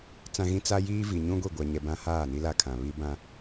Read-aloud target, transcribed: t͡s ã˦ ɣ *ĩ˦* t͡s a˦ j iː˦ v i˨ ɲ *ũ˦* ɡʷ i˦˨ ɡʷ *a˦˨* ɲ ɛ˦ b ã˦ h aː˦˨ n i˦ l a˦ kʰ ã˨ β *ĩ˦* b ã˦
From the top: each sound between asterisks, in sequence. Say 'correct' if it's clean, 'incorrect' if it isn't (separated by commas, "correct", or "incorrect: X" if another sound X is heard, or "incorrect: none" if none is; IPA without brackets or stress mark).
correct, correct, incorrect: a˦, incorrect: i˦